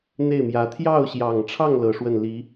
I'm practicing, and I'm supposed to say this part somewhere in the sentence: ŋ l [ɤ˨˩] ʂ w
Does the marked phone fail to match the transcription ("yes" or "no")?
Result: no